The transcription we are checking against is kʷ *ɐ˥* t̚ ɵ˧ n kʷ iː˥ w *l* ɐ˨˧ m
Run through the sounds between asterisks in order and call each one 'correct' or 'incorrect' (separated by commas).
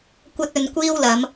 correct, correct